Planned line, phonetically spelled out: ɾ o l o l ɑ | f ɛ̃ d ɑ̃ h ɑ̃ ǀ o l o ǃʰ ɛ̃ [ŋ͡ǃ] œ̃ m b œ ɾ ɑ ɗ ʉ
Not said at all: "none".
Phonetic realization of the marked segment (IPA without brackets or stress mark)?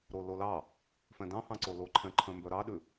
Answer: ǃʰ